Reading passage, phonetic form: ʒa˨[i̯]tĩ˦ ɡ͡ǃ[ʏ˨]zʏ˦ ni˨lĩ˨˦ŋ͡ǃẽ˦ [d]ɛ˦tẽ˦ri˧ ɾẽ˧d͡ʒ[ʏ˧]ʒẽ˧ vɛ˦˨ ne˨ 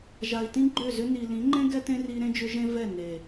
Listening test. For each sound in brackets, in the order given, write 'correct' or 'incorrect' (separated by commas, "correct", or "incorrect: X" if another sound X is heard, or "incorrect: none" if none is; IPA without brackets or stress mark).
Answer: correct, incorrect: ʏ˦˨, incorrect: ɡ, correct